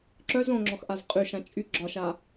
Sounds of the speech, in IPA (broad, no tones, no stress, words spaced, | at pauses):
ǁœz õŋ͡ǁɔxʔaz qʼyʃã t͡ʃʼy ɡ͡ǁɒʃa